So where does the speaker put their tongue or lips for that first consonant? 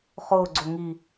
uvula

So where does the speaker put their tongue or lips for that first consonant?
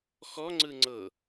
velum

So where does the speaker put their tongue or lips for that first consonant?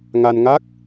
velum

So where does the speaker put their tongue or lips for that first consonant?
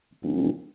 lips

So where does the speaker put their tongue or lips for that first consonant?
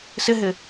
tongue tip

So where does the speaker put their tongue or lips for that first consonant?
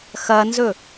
velum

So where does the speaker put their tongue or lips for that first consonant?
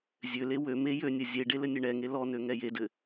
tongue tip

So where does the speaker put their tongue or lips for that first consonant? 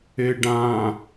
retroflex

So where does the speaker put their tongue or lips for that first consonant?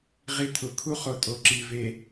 uvula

